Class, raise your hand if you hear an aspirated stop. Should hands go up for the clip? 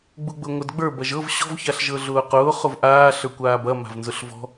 no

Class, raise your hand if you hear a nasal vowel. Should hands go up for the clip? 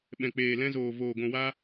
yes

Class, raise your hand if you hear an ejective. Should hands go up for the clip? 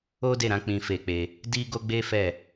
no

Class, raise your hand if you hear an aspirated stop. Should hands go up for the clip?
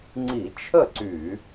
yes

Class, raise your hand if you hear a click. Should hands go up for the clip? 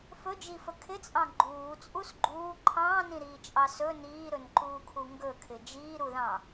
yes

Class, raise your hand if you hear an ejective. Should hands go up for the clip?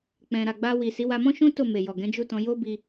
no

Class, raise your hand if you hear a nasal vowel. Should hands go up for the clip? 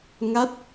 no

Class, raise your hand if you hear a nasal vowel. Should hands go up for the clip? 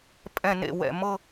yes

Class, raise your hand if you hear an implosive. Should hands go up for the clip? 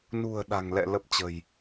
yes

